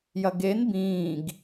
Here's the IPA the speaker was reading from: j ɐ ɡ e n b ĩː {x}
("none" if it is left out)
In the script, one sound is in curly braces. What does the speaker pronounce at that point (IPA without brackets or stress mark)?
ɡ